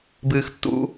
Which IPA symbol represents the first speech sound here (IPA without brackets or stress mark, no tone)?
b